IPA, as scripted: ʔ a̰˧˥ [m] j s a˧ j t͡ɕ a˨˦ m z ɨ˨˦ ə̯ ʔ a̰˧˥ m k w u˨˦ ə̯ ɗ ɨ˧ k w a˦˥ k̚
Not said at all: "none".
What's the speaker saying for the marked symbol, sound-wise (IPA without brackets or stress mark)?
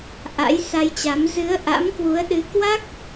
none